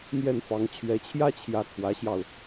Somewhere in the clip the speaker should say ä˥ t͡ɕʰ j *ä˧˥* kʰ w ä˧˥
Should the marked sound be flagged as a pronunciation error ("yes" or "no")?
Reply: no